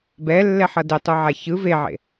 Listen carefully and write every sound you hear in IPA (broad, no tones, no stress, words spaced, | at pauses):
bɛlːɛ ħʌdetˤuʕa çɯ veʕḛ